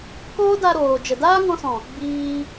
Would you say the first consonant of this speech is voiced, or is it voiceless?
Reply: voiceless